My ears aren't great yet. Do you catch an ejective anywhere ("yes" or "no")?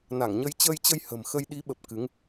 no